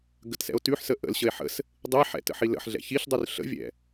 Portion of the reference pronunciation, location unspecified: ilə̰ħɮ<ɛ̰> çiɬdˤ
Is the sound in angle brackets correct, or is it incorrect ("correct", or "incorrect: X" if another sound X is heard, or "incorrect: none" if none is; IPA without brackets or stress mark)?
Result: correct